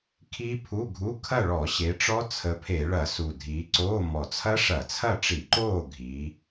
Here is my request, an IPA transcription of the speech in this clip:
kʰiː˦˥pʰu˧˥˧ɡʱu˧˥˧ kʰɐ˥˨ɭɔ˧˩˧ɕe˨˦ʈ͡ʂɔ˦˥ t͡sʰə˨˦pʰe˧˩˧ɭɐ˧˩˧ su˨˩dʱiː˨˦ǀoː˧˥˧ mɔ˨˩t͡sʰɐ˦˥ʂɐ˧˩˧t͡sʰɐ˥˨ ʈ͡ʂi˧˩˧ǃoː˥˨ ɡʱi˨˦

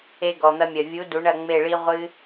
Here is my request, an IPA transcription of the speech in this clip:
e˧ɡɔ˨n̪ɐ˧mʲɐ˨ vʲu˨˦ du˨˦ɳɐ˦˨ŋ͡me˦˨ɭi˦ ʁʷɨ˦

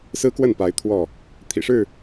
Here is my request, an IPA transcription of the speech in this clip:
sɹ̩˦kwə˥˨npa˨˦ɪ̯ t̪ʰwɔ˥˨ | t̪ʰḭ˨˩ʂɻ̩˥˨

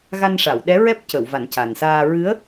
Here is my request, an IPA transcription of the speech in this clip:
ɣa˧nʂa˨˩˨wɗɛ˧˥ ɹɛ˦˥p̚cə˨˩˨w va˨˩˦nca˨˩nsaː˧ ɹɨ˧˥ə̯

